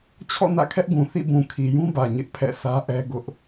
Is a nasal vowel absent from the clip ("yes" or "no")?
no